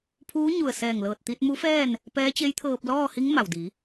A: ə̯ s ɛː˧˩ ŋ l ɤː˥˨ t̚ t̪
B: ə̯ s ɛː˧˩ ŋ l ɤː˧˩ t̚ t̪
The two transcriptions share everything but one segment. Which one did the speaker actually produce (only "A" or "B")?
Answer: B